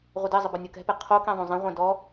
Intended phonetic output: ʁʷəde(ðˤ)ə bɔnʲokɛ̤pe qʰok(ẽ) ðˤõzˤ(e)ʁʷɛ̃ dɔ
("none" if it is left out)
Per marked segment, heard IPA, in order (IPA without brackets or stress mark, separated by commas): zˤ, ẽ, ẽ